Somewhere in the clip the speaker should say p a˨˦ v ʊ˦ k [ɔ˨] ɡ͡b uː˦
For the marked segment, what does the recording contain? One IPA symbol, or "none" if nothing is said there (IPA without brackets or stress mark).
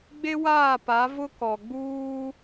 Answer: ɔ˨